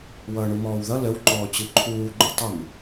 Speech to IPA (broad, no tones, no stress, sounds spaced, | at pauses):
w ʌː ɳ u m ɔː w ð ʌ l ə w ǃ ɔː t͡ɕ ɨ ǃʰ uː ɡ͡ǃ u tˤ ə m